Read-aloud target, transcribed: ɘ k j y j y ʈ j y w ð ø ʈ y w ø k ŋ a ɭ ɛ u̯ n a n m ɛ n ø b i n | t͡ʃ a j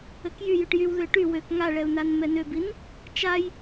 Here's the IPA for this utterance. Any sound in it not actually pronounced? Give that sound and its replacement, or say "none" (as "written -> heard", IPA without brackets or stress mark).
none